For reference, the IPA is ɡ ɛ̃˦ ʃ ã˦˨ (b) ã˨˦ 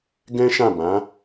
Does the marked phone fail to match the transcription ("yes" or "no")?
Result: no